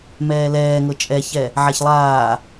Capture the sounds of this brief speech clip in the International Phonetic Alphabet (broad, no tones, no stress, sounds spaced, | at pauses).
m ɛː l ɛː ŋ ɤ t͡ʃʼ ɛ ç ɛ | ʕ a ç lˠ aː